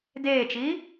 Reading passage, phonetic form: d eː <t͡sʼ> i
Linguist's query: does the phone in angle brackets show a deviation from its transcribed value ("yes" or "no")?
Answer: yes